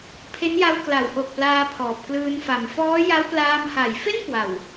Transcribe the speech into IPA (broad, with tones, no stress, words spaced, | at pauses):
pʰe˦˥nja˧w kla˩˦wʔo˨˩k̚ plaː˧pʰɔː˨˩p̚klɯː˧n fa˨˩mfɔː˦˥ja˦˥w plaː˧m ha˩˦jfe˥˩n kwa˨˩w